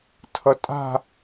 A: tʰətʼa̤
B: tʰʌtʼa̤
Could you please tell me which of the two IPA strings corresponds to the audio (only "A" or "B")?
B